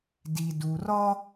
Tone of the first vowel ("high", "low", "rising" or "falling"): low